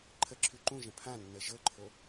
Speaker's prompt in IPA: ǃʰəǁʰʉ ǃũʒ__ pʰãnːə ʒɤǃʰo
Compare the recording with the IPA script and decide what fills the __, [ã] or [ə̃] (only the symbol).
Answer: ə̃